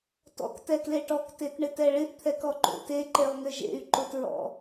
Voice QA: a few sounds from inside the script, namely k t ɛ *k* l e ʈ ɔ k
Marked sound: correct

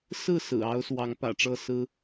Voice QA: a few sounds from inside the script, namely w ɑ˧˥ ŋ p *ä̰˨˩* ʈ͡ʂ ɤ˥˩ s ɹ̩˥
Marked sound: correct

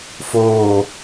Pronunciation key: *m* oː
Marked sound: incorrect: f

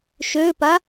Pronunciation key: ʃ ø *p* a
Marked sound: correct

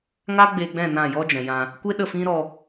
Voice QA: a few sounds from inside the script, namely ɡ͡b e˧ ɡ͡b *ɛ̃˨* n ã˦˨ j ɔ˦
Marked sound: incorrect: ɛ̃˦˨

